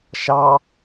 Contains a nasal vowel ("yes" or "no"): no